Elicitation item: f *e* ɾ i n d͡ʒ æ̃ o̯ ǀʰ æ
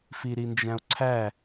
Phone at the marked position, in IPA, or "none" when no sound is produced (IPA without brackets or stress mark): i